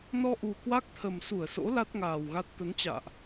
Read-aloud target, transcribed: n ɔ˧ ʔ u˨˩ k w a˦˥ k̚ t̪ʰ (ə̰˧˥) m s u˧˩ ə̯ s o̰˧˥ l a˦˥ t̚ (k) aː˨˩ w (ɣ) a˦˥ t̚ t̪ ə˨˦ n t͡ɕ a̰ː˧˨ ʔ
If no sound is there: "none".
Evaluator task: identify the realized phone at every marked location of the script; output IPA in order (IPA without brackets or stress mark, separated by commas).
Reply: ə˨˩, ŋ, ɣ